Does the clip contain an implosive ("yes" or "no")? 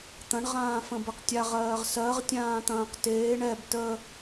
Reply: no